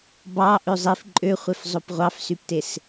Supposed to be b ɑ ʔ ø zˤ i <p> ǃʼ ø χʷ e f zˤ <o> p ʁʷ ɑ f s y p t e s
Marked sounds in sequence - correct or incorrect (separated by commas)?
incorrect, correct